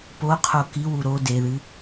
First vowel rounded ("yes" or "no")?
yes